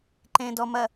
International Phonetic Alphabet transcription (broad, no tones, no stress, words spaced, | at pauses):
ǃẽ dɔ mɐ